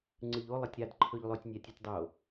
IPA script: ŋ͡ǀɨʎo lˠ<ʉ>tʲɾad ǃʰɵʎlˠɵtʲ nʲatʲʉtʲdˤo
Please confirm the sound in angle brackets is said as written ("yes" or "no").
no